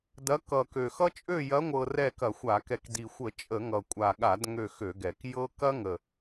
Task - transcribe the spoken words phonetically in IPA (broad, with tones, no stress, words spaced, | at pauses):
dɐ˨˦ kʌ˨˩kø˨˩xʌ˦t͡ʃʼø˦˨ jɐ˨˦ŋʷɤ˨˩ rɛ˦˨kɐ˧˩˧xʷa˧˩˧kɛ˨˦k di˨˩xʷə˧˩˧ t͡ʃʼə˧˩˧ŋʌ˨˩kʷʼa˨˩ɠa˧˩˧d ŋø˦˨xø˧˩˧ɡɛ˨˩k jɤ˦ kɐ˦ŋə˨˩